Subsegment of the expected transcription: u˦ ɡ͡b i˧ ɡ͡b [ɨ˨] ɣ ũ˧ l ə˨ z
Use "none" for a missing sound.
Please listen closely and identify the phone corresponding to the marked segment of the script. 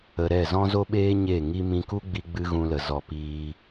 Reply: ɨ˦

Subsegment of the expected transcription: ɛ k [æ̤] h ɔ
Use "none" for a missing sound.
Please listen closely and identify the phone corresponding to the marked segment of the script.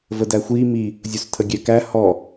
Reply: æ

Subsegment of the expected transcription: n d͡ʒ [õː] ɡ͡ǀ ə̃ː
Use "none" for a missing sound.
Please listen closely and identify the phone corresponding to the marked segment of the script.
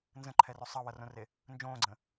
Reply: õː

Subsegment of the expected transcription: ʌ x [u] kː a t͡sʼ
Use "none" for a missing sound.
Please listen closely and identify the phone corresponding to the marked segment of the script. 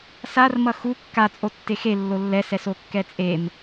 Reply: u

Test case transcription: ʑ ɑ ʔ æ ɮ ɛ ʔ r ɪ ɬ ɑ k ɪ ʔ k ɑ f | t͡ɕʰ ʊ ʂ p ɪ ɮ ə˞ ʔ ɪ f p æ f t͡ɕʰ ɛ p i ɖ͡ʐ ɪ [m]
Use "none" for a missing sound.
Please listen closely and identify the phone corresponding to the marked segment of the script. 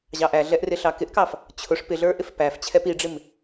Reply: m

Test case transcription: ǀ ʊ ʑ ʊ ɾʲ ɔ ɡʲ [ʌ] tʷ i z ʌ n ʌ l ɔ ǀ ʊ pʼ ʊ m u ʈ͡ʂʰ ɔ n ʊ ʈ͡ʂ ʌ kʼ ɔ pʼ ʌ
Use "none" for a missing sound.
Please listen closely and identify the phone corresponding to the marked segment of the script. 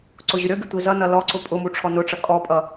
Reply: ʌ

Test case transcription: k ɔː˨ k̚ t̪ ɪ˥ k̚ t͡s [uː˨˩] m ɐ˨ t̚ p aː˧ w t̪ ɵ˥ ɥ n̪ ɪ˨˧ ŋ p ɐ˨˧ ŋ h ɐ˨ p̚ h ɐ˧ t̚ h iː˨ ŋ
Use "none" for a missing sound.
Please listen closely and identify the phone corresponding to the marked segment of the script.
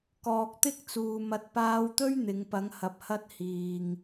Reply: uː˨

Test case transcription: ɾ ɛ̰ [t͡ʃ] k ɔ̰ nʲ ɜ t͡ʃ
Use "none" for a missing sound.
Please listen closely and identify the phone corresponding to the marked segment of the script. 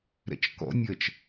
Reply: t͡ʃ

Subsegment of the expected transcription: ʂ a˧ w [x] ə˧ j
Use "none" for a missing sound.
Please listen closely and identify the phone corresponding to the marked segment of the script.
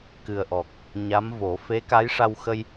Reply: x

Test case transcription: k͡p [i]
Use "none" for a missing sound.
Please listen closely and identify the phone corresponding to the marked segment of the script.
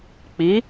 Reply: i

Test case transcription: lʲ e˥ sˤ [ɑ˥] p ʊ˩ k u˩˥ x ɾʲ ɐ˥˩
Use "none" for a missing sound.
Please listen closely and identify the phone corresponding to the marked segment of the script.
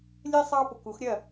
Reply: ɑ˥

